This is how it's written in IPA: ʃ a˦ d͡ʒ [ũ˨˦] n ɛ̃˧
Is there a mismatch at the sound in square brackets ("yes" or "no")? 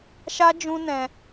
yes